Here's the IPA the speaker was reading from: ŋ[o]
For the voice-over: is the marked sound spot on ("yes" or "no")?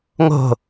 no